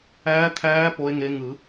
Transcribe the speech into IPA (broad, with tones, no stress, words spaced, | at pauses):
æː˧˥t̪ʰæː˧˥ po˧˥e̯ŋe˧˥ ŋɯ˨˩˦